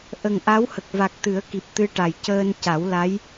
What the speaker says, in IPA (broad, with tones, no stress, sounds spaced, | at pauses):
ʔ ə˨˩ ŋ ʔ a˧˥ w h ə˨˩ k̚ v a˨˩ k̚ t̪ ɨ˨˩˦ ə̯ k i˨˩ p̚ t̪ ɨ˧ ʈ a˨˩ j c əː˧ n c a˨˩˦ w l a˧˥ j